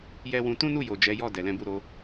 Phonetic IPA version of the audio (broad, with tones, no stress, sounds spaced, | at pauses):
j ɛ˦ w ũ˧ t ũ˦ n u˦˨ j o˨ d͡ʒ ɛ˨˦ j ɔ˦˨ d ɛ˨ l ɛ̃˨˦ b u˦˨ ɾ o˨˦